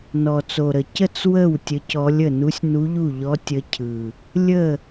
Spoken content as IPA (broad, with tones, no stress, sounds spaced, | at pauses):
n ɔ˨˩ t͡s o˨˩ ɾ ə˨˩ c ə˥˨ t͡s w ə˥˨ w tʲ ə˧˥ c ɔ˧˥ lʲ ə˥˨ n u˧˥ sʲ n u˧˥ ʎ u˥˨ ʎ ɔ˧˥ tʲ ə˧˥ cʰ ɯ˨˩ | lʲ ə˥˨